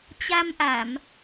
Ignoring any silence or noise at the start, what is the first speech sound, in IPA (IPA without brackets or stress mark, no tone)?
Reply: t͡ɕ